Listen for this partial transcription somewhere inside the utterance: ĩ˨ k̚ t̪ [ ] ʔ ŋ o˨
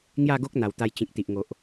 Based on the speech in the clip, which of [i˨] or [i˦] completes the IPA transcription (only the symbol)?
i˨